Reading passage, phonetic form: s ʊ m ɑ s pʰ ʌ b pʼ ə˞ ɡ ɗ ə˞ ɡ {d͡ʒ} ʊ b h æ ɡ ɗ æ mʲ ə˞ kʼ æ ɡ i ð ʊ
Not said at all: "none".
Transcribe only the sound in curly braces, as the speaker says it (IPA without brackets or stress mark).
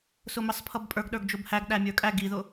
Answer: d͡ʒ